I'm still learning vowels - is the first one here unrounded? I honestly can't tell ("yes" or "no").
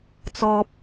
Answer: no